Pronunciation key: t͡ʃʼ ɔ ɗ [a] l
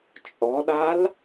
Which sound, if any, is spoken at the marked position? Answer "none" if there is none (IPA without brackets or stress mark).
a